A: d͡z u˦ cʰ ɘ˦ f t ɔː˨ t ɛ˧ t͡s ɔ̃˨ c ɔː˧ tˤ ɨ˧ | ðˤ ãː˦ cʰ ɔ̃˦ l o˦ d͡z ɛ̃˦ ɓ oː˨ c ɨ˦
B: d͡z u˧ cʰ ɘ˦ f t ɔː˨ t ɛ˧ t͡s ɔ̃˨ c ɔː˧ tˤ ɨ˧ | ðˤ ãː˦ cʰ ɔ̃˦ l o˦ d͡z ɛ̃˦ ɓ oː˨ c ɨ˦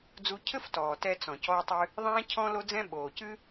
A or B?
B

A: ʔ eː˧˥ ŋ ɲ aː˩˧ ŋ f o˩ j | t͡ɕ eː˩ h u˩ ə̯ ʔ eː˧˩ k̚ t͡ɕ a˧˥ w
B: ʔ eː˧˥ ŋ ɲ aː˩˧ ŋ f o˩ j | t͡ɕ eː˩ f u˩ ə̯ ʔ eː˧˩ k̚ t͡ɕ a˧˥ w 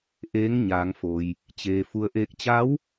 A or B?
B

